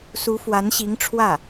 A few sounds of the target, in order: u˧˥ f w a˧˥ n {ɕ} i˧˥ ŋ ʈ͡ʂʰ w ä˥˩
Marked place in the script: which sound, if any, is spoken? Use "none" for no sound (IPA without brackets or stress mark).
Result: ɕ